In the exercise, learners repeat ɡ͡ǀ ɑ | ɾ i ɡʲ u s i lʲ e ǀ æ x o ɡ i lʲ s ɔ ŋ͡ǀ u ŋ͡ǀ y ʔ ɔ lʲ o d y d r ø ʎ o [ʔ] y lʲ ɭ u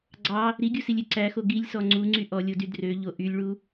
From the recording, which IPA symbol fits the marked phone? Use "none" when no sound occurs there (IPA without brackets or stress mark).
ʔ